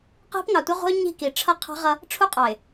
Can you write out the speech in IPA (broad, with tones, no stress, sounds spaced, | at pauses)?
q i̤˦ p ŋ ɑ˨ tʷ ʌ˦ ʁʷ ə̤˦ ʊ̯ ɲ i̤˦˨ k i˨ ʈ͡ʂʰ ʌ˦ qʰ ɑ̤˦ ʁ ʌ˦ | ʈ͡ʂʰ u˦ qʼ ɑ˨ ɪ̯